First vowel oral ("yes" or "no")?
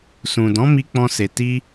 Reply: no